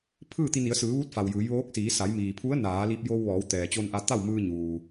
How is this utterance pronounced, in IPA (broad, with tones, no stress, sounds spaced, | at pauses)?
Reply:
pʰ ɯː˥˨ t̪ i˧ n i˩˧ ə̯ s ɯː˩˧ ʋ u˧˥ t̚ f a˩ w j ɯː˩˧ j ʋ oː˧˥ k̚ s iː˩˧ s a˩˧ j m iː˩ pʰ u˧˥ ə̯ n aː˩˧ l i˧ p̚ j o˧ w ʋ ɔː˩˧ w t̪ ɛː˩ t͡ɕ o˧ n ʔ a˧ t̪ a˥˨ w m ɯː˧ ɲ uː˩